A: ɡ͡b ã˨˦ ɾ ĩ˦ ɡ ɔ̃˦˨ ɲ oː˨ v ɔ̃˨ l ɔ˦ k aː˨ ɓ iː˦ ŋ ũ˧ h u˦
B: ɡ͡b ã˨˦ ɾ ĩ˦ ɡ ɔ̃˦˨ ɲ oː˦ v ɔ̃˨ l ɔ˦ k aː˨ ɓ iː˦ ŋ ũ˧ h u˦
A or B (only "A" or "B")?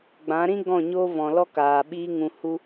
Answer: B